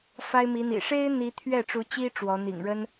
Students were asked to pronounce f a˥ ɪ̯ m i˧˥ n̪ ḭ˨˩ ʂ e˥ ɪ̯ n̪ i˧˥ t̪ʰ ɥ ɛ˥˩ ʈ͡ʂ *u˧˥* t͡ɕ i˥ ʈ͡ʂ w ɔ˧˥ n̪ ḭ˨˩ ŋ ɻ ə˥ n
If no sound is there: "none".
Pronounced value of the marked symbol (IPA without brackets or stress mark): u˧˥